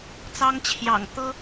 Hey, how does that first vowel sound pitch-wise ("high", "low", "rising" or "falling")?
high